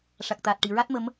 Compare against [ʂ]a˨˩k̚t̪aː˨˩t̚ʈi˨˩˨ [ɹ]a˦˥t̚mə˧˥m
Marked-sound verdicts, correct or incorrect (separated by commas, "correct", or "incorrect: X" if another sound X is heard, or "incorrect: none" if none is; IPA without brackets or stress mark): correct, correct